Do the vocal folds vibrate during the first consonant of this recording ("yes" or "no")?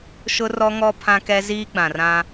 no